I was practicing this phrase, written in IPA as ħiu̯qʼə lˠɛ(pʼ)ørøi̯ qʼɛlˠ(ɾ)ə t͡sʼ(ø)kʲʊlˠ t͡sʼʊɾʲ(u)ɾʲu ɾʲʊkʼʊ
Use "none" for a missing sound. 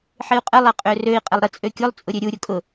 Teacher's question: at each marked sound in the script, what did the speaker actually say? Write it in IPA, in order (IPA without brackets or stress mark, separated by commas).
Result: qʼ, ɾ, ø, ø